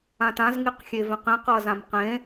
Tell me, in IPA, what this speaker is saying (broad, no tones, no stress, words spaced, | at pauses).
ãtãz ŋiqxʲevẽqĩq ʌːzãmqẽ